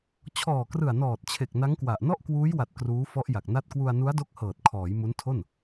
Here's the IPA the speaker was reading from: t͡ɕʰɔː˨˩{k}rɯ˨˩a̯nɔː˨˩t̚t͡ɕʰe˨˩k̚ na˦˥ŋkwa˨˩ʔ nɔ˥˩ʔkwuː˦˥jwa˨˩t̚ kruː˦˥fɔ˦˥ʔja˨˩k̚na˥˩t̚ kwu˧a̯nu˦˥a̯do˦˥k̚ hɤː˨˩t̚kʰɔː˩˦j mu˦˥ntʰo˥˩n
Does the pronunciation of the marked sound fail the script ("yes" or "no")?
no